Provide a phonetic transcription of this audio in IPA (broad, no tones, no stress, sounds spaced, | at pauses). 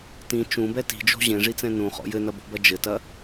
t ĩ t͡ʃ ũ b ɛ t i̤ d͡ʒ o̤ ʑ ẽ ʐ i t͡s ɛ̃ n ũ χ ɔ̰ j ɘ n ɐ b o̤ b ɐ d͡ʒ ɘ t ɐ